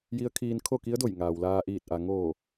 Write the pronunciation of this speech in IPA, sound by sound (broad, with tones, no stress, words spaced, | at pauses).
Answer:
ji˧˥ə̯ kʰiː˧nkʰo˥˨ki˧˥ə̯do˧˩j ŋaː˩wlaː˧ʔiː˧˩t̚ ʔa˩ŋoː˧˩